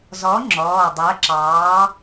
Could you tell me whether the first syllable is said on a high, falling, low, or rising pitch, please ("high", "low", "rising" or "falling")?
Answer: rising